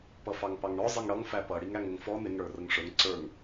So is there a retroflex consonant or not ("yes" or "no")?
yes